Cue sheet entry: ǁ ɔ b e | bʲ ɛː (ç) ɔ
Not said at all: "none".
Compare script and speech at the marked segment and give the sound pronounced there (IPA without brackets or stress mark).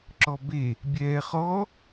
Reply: χ